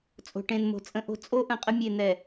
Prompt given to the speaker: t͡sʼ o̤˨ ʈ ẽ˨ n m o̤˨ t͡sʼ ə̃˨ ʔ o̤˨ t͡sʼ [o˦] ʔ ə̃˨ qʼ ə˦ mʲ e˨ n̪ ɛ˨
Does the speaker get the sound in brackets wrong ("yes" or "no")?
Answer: no